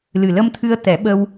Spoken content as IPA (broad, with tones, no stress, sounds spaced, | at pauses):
l ɨ˨˩ l ə˧ m t̪ʰ ɨ˧ ə̯ t̪ ɛ˨˩˦ ɓ ə˧ w